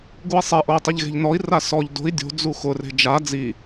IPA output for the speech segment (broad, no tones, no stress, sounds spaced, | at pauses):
ɡ u i̯ sˤ e ʔ o i̯ tˤ i ʎ ɣ e̤ ʎ n ɔ i̯ r a s ɔ ʎ d o̤ i̯ dʲ o̤ d͡z u x ʊ r e̤ d͡ʒ a d͡z i